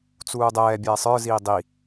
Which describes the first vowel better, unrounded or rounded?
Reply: rounded